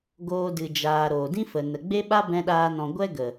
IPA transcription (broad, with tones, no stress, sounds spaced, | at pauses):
ɡ oː˧ d ɨ˨ d͡ʒ aː˨ ɾ oː˨ d ĩ˦ f ə˨ n ə˨ ɡ͡b e˦ ɓ a˦ b ɛ̃˦ ɗ aː˦ n ɔ̃˧ ɡʷ ɛ˦ ɡ ə˨